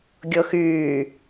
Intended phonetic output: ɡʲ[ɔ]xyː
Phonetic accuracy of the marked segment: incorrect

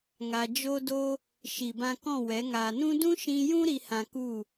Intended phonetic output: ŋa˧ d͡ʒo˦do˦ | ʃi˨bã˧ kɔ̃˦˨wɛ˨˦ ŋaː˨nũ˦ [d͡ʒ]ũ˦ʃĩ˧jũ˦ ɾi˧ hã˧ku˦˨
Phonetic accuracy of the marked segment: incorrect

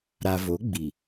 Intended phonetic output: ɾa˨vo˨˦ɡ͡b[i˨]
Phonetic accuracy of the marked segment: correct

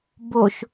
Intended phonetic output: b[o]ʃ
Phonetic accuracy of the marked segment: correct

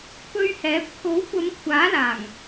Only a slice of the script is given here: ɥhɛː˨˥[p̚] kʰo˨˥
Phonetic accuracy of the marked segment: correct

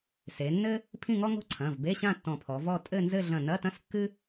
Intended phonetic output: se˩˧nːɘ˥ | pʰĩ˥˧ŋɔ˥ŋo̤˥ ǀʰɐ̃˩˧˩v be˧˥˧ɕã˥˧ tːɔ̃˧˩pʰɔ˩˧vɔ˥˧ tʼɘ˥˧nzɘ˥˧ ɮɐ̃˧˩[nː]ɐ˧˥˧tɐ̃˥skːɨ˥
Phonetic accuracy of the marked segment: incorrect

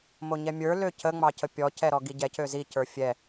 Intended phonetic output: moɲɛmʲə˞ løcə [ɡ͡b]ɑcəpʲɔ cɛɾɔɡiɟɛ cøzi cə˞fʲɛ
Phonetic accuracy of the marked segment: incorrect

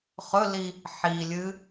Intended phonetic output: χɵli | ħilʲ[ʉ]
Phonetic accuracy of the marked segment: incorrect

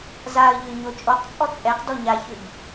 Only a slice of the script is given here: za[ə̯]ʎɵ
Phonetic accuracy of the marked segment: correct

